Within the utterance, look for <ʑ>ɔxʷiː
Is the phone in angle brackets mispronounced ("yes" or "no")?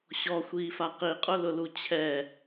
yes